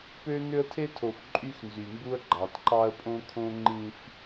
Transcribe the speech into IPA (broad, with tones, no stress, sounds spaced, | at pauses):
p ø˦ n ø˦ ə̯ tʰ e˦ tʰ o˨ f ǃʼ y˦ x n z y˨ m b u˦ ə̯ ɡ͡ǃ ɑ˨ t ǃ ɑ˦ ə̯ pʼ õ˦ kʰ õ˦ ŋ͡ǃ ĩ˦ f